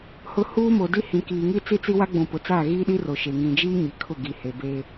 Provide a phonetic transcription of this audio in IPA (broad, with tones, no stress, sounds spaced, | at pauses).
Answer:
h ʊ˨ h uː˦ m o˨ d i˦ h ĩ˨ k iː˨ ŋ i˦ t͡s i˦ t͡s i˦ w a˦ ɡ͡b ũ˨ p ʊ˨ t͡s aː˦˨ ɣ iː˦ ɗ i˦ r o˨ ʃ e˨ ŋ ĩ˨ d͡ʒ iː˦ ɲ i˨ kʰ ʊ˦˨ ɡ i˨ h e˨ b eː˦